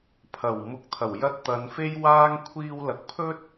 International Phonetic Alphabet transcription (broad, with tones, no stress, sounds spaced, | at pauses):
pʰ ɐ˨˩ w m ʊ˨˥ k̚ t̪ʰ ɐ˨˩ w j ɐ˧ t̚ t̪ ɐ˨˧ n f e˥ j w aː˥ ŋ kʷʰ iː˧ w l ɐ˨ k̚ pʰ ɵ˥ t̚